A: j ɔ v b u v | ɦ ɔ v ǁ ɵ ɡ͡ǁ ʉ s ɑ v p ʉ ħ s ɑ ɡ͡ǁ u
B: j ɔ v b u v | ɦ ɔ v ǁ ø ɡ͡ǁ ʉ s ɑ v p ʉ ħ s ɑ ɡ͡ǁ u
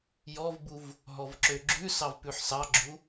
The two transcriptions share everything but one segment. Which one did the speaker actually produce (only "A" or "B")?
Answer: B